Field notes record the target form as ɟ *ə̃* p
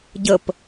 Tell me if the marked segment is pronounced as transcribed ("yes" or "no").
no